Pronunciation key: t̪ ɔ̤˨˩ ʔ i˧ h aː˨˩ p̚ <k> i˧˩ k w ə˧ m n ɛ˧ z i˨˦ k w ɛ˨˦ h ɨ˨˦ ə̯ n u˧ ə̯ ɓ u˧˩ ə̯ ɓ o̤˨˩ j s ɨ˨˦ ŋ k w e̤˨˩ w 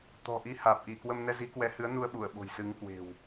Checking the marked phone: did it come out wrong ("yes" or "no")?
yes